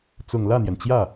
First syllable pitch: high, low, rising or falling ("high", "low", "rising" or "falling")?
low